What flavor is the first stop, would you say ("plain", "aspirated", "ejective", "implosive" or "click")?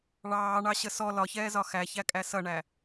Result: ejective